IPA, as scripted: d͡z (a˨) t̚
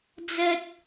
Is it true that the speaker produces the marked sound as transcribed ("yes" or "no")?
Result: no